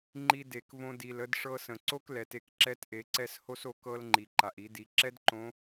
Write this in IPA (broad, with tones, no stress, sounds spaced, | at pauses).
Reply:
ŋ͡ǃ i˧ d e˩ k v õ˧ d i˩ l ə˧ d ʂ ɤ˧ s ə̃˩ ǀ o˥ k l ɛ˩˧ t e˧ k ǁ ɛ˧˥ t ʔ e˩˧ ǀ ɛ˧ s h o˥ s o˧ k ɤ˧ l ŋ͡ǃ i˩ ǃ a˩ ʔ i˩˧ d i˩˧ ǁ ɛ˥ d ǃ õ˧˥